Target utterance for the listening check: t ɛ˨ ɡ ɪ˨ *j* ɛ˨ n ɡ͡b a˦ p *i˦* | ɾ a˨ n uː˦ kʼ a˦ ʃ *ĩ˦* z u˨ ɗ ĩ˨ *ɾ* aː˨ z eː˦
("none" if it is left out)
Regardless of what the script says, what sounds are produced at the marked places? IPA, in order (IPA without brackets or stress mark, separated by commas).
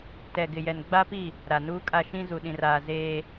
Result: j, i˦˨, ĩ˦, r